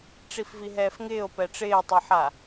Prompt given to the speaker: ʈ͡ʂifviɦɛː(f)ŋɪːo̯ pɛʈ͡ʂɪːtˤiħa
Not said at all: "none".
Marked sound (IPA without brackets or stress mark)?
f